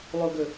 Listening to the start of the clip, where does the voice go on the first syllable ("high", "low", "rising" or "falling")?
low